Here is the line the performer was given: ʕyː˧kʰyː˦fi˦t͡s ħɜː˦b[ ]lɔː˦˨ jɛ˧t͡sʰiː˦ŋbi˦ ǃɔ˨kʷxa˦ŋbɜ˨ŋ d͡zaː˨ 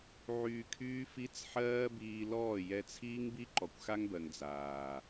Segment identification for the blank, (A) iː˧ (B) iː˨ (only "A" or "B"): A